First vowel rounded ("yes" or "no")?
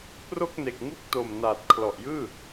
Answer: yes